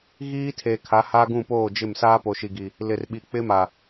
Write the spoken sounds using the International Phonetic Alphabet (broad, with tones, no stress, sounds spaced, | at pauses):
ɣ iː˦ tʰ e˨ kʰ a˨˦ h a˦ ɡ ũ˦˨ p oː˦˨ d͡ʒ ɪ˦˨ m s aː˦ p o˨ ʃ i˨ ɡ i˨ | l ɪ˨ r ɓ i˨ k͡p ɪ˦ m a˨